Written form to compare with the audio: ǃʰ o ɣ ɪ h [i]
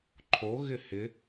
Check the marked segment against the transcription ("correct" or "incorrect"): incorrect